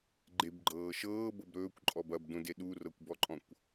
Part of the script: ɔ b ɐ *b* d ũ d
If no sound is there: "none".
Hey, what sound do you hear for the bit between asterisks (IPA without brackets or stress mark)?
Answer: b